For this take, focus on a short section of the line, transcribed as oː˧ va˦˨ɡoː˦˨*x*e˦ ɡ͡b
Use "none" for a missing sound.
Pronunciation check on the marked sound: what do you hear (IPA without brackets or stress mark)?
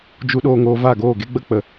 ɡ